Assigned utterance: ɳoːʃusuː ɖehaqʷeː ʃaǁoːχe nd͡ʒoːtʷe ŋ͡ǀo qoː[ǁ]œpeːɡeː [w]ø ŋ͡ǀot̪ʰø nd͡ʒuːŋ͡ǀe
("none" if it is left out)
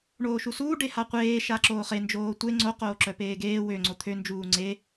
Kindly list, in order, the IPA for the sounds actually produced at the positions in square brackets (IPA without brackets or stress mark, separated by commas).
ǁ, w